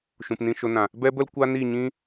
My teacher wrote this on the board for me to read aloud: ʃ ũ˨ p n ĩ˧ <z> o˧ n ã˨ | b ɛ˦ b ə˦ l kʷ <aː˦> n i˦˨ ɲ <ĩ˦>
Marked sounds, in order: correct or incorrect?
incorrect, incorrect, correct

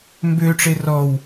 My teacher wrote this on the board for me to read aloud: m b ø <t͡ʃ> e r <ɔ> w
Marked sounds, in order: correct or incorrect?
incorrect, correct

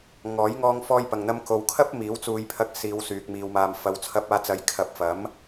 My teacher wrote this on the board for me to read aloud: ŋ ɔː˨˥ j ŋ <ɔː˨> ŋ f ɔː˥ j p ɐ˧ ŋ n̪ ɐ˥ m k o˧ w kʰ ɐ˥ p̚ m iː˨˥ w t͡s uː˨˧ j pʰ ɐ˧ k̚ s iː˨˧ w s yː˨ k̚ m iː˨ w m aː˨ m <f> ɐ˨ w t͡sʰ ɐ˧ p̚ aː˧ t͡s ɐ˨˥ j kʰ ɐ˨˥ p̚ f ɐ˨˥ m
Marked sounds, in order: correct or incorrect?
incorrect, correct

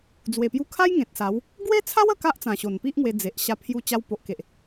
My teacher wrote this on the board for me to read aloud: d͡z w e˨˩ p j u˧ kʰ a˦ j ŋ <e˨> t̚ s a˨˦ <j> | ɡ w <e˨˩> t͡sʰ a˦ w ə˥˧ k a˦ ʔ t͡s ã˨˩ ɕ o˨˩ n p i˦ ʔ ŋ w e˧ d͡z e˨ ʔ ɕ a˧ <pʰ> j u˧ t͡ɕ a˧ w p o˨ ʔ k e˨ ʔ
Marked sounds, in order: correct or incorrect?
incorrect, incorrect, incorrect, correct

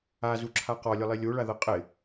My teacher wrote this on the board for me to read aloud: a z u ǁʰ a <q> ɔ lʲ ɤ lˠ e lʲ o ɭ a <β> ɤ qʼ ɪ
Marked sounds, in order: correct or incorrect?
correct, incorrect

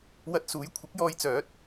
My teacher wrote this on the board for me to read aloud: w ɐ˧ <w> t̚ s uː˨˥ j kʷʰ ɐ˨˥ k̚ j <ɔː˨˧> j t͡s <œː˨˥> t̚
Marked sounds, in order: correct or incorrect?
incorrect, incorrect, correct

